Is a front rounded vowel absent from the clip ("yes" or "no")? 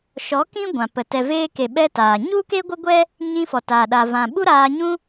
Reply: yes